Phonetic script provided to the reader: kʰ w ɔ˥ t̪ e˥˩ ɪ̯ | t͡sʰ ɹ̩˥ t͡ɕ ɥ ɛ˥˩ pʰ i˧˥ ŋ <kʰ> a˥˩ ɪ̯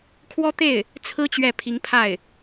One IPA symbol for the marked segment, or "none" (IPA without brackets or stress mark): pʰ